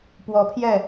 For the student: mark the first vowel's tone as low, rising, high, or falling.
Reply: rising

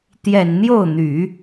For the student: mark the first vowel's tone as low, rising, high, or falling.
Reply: low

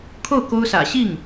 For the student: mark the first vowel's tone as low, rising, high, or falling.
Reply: falling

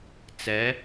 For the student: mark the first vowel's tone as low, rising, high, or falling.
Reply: rising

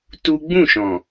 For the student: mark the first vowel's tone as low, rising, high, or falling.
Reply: high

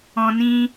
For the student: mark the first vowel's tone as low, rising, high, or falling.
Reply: low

